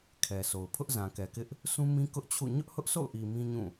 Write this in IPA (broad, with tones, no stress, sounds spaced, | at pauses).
kʰ ɛ˨ sʰ o˨ ʊ̯ pʰ ʊ˦ ʔ z ã˨ k ɛ˨ k ɪ˦ ʔ | s ũ˦ m ĩ˦ k ʊ˦ ʔ t͡ɕʰ ṵ˦˨ ɲ ʊ˦ ʔ h ʊ˦ ʔ sʰ o̰˦˨ ʊ̯ ʔ i˨ m ĩ˦ ɲ ũ˦˨